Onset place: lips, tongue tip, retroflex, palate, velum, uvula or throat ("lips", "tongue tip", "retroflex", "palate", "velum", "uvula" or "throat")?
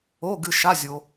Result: velum